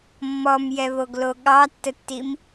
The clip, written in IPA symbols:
mːɔmjɛβoɡlo ɠɑtːətːim

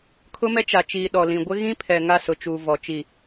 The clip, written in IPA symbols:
kʰʊ˦mɛ˦t͡ʃa˨t͡ʃiː˨ ɗɔ˨lĩ˨ɡʷɪ˦ ɣĩ˦pʰɛ˨ ŋa˦˨sʊ˨t͡ʃuː˨ vɔ˨ t͡ʃi˨

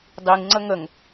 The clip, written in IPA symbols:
dˤiŋŋ͡ǀə ŋəŋ

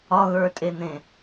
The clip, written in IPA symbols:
ɒɣə˞tʼen̪ẽ

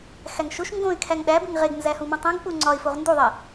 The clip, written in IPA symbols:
xæŋʃoʃ ŋɡõɪ̯ kʰæŋɗæbĩŋ ʁeɡnzæhũmĩ tˤĩɡk͡pu ŋ͡ǀɒɪ̯foʁ nduðˤi

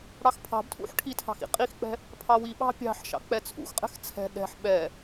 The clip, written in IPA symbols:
ɽɑxpʰɑ̤btʰṵħ ʈʰitʰɑ̤x ḭqʼixk͡pɛ̤ | pʰɑwiɓɑ̤ pʲɑ̤ħ ʃɑ̰k͡pɛt͡sʰṵxqʼɛ̤x t͡sʰɛ̤ ɗɛ̤ħ ɓɛ

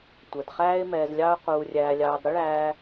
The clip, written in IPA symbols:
tʷɛ˨dχæː˦ɪ̯mɛ˧zlʲɑ˦ʊ̯ quː˧rʲæː˧lʲɑː˧d ɾʌ˦ɭæː˧

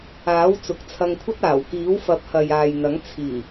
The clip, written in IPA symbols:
aː˨˥w t͡sʊ˨k̚t͡sʰɐ˧ŋkʷʰɐ˥t̚aː˨˩w kiː˨˥wfɐ˨˥p̚ hɐ˨jaː˨jn̪ɐ˨˥ŋ t͡sʰiː˨˩

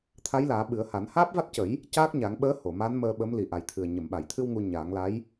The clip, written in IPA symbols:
t̪ʰa˧˥jlaː˨˩˦ ɓɨ˨˩˦ə̯ha˨˩˦n haː˦˥p̚va˦˥t̚cə˨˩˦j | caː˦˥k̚ɲa˨˩˦ŋ ɓəː˧˥ho˨˩˨ ma˧˥nməː˧ɓə˧˥m li˨˩ʔa˨˩jt̪ʰɨ˨˩ə̯ ɲə˨˩˨mɓa˨˩˨jt̪ʰɨ˧w ŋu˧ ɲaː˨˩˦ŋla˧˥j

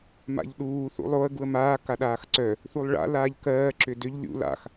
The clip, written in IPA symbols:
ma̰ʎɗuː θṵlˠoə̯ ɡuə̯maː kaɗaːxǀœ | θulˠɭa̰ laːʎkɜː ǁʏdʏʎ lʲṵ la̰x

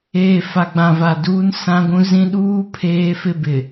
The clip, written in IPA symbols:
eː˨ fa˨ɡ͡bã˨va˨duː˦n sã˦ɡʷũ˦ zĩ˦ ɗuː˦ pʰeː˦fɪ˦bɪ˨

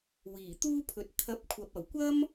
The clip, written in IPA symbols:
wiː˨˩t̪uː˥pʰɵ˨t̚ t̪ʰɐ˨˥p̚kʷʰɐ˨p̚ ɐ˨˩wkʷɐ˥m

